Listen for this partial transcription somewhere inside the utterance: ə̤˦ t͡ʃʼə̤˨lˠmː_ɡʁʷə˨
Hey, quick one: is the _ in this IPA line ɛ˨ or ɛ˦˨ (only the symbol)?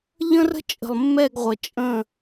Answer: ɛ˦˨